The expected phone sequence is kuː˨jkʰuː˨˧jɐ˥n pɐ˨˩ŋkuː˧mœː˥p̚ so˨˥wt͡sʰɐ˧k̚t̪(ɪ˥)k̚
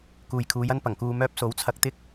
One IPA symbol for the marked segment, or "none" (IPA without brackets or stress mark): ɪ˥